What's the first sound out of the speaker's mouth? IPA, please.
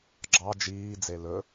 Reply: ɡ͡ǁ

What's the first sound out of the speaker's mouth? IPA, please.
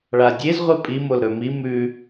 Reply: ɭ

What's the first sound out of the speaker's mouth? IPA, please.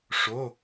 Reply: ʂ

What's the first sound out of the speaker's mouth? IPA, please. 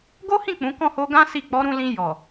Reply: ɡ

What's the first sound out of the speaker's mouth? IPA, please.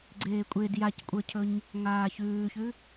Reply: ɡ͡ǀ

